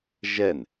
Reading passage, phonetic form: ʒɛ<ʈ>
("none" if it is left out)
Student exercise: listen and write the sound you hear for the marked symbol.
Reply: n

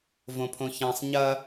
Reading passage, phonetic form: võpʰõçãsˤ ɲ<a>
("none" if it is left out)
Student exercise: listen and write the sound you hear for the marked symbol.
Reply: ɐ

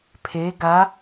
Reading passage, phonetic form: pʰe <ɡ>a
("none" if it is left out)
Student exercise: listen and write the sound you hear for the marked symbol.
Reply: ɡ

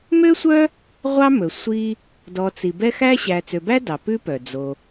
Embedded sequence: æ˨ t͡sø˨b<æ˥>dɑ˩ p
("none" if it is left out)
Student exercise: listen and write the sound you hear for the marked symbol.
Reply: æ˥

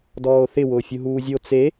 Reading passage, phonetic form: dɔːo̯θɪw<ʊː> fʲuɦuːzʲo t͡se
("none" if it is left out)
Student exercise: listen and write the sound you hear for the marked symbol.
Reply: ʊː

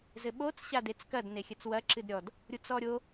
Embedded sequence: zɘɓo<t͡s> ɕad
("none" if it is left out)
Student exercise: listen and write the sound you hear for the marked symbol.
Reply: t͡s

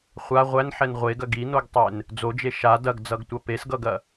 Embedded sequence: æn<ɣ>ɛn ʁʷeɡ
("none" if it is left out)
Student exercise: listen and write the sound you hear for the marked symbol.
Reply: ħ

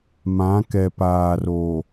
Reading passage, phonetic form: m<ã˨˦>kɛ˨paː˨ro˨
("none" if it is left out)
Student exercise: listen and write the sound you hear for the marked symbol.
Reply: ã˨˦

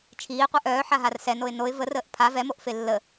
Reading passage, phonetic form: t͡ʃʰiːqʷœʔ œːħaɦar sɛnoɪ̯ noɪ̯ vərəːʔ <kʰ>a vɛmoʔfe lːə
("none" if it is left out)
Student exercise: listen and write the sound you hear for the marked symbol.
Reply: pʰ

